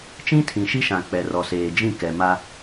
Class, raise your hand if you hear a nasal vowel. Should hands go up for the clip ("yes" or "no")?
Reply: yes